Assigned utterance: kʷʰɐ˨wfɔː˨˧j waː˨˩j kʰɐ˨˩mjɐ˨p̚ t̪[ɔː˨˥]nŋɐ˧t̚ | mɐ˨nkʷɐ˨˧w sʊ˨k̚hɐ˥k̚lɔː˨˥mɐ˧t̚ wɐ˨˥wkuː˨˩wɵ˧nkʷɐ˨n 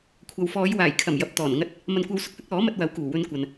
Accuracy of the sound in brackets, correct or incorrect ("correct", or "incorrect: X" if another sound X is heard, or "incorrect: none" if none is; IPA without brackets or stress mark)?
incorrect: ɔː˨˩